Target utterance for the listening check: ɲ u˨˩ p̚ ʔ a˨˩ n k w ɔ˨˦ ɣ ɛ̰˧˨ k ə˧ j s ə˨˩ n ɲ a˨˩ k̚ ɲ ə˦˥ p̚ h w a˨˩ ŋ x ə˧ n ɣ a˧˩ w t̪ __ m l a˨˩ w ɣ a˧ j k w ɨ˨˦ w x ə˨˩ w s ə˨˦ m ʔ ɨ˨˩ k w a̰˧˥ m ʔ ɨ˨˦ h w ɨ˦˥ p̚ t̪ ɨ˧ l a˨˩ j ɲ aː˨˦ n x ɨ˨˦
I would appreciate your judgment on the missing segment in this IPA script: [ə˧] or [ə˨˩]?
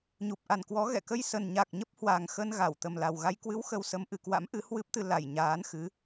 ə˨˩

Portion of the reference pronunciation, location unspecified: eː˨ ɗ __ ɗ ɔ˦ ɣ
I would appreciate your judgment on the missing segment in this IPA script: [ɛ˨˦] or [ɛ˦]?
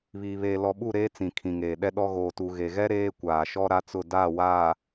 ɛ˦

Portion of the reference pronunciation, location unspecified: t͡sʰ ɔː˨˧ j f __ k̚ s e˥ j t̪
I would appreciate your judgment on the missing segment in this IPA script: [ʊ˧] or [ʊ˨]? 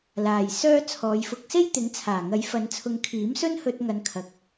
ʊ˧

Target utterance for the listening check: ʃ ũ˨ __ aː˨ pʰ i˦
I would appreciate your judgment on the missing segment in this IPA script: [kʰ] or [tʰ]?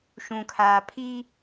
kʰ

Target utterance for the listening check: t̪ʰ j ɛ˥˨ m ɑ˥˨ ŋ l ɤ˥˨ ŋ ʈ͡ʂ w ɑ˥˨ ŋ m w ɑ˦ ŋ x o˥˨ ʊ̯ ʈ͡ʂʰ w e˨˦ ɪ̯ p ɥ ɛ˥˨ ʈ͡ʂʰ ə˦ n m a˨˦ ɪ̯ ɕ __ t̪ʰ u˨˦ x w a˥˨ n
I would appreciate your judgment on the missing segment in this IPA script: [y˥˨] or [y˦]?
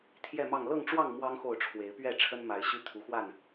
y˦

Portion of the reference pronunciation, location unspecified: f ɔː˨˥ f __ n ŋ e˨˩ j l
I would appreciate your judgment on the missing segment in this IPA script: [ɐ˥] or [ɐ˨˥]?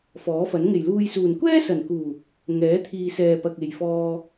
ɐ˨˥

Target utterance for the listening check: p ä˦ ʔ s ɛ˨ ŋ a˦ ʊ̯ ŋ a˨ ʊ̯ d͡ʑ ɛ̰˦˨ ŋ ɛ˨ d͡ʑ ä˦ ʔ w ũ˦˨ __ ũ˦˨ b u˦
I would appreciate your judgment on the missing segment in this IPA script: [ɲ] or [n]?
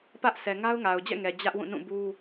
n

